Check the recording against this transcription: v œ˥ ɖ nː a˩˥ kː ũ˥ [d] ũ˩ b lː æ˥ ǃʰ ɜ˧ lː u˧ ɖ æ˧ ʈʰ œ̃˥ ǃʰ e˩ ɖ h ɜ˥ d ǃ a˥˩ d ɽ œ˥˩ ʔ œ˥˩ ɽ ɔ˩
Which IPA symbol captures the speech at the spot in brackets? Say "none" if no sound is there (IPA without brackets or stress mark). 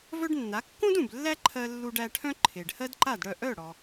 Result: d